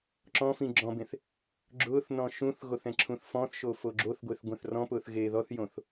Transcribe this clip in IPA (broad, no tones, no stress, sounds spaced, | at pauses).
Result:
ǁ ɔ̃ f ĩ ɡ͡ǁ ɔ̃ b ẽ θ | ɡ͡ǁ ʊː θ n ɔ̃ ʃ ũ θ ɣ o θ ɛ̃ ǁʰ ũ θ f ɔ̃ θ ʃ o f o ɡ͡ǁ o θ ɡʷ e θ ɡʷ ɛ̃ θ r ɔ̃ p ʊː θ ɣ eː ð ɔ θ j õ θ